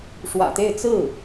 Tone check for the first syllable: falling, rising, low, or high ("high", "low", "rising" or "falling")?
low